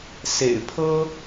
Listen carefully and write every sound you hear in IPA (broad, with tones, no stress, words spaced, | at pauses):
sḛ˨˩ɪ̯pʰɤ˥